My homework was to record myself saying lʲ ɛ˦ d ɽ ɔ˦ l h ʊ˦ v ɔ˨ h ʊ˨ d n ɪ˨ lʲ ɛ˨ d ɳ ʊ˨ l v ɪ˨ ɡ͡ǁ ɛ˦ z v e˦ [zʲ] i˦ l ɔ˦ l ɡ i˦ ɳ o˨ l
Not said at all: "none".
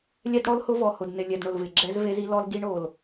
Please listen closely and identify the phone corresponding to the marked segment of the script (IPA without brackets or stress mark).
z